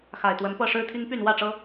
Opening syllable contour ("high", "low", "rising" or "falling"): low